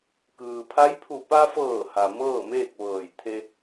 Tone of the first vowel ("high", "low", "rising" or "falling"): low